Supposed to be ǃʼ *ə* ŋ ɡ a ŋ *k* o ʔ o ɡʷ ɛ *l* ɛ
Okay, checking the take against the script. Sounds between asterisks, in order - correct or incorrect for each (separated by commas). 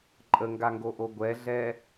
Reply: correct, incorrect, incorrect